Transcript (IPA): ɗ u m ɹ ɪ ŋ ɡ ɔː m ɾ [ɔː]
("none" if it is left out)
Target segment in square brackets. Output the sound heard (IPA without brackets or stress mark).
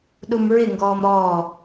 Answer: ɔː